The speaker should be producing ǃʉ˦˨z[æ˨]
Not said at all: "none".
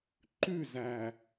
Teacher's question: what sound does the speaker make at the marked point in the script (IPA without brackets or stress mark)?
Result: æ˨